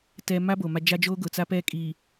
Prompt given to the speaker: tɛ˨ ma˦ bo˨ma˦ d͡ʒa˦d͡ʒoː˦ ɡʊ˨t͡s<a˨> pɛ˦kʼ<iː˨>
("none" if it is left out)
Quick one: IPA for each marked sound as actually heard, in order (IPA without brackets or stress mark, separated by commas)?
a˦, iː˨